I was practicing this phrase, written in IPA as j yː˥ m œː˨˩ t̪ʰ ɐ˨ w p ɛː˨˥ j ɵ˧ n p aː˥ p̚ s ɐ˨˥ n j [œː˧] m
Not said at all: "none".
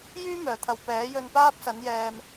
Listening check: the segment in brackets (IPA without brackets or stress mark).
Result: ɛː˧